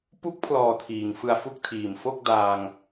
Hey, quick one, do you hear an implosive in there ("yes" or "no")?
no